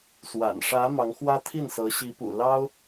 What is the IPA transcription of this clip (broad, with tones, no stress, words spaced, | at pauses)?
swa̰˨˩n ʂä˧˥ mɑ˧˥ŋxwä˥ t̪ʰi˥˩nsɤ˧˥ɕi˧˥pṵ˨˩ lɑ˥ʊ̯